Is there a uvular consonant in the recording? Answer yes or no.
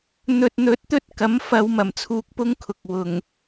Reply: no